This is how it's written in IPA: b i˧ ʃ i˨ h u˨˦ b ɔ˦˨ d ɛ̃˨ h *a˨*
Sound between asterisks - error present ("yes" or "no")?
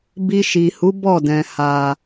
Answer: no